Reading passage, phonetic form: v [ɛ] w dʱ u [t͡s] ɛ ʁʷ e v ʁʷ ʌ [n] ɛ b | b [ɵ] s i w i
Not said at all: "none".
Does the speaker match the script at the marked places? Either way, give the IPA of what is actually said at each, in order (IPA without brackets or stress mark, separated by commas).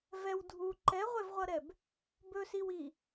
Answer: ɛ, ǃ, ɾ, ɵ